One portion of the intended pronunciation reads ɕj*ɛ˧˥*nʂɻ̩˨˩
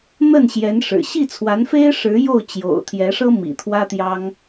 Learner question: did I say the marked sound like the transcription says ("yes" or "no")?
yes